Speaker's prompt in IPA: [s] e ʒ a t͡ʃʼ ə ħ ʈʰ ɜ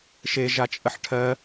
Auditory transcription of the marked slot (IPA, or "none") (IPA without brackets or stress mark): ʃ